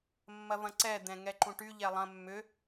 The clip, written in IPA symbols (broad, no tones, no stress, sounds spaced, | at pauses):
mː ɐ v ɐ̃ ǀ ɛ d̪ ɛ̃ ŋ ɛ ǃ ũ ʈ y ʎ ɛ lˠ ɐ̃ mː ʏ